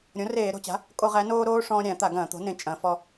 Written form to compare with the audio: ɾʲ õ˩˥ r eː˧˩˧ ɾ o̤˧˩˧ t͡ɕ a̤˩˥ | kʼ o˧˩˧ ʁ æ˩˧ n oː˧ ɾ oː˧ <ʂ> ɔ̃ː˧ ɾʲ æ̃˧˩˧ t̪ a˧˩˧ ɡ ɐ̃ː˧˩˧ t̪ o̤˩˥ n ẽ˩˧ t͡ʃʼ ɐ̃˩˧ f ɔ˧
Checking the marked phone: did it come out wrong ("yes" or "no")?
no